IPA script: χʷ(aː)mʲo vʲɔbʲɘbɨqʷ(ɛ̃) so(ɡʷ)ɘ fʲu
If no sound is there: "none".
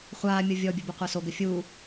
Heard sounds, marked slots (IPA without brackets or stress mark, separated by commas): aː, ɛ, ɡ